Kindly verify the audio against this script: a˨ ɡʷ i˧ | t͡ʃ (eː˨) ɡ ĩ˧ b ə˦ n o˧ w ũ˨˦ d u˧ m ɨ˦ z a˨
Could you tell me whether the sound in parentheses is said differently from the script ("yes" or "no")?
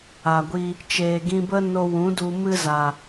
no